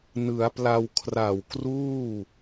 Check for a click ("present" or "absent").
absent